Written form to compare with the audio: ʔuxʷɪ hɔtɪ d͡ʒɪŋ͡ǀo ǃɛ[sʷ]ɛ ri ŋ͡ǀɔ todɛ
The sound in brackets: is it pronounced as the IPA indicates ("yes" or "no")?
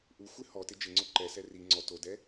no